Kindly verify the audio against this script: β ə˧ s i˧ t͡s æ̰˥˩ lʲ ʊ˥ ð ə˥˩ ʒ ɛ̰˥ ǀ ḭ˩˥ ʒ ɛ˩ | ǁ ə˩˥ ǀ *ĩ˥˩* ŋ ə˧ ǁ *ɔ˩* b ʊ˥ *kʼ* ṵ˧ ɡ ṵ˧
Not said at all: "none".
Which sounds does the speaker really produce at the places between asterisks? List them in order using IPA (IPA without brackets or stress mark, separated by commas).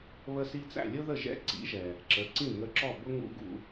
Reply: ĩ˥˩, ɔ˥˩, ŋ